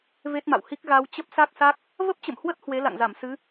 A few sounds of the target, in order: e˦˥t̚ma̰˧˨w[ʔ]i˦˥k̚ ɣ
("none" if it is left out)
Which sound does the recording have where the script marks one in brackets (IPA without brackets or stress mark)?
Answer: h